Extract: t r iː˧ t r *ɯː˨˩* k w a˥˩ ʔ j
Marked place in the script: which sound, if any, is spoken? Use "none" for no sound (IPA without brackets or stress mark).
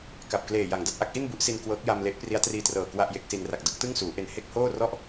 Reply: ɤː˨˩